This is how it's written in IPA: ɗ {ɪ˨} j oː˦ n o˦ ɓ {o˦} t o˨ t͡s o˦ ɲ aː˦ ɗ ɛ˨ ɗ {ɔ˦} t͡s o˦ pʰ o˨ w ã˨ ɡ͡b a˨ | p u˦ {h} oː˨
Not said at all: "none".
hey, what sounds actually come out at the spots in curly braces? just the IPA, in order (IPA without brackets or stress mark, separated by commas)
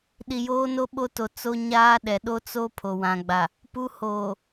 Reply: i˨, o˦, o˦, h